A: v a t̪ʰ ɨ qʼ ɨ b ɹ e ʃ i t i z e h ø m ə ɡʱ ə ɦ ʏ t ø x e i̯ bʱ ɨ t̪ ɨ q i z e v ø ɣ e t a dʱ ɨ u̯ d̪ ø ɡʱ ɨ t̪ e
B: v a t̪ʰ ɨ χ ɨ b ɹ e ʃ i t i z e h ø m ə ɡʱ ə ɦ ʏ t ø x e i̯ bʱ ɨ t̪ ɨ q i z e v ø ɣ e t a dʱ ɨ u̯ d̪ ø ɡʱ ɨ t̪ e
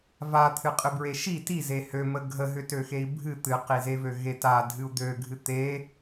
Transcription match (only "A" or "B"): A